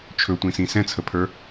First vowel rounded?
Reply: yes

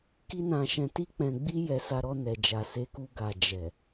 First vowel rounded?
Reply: no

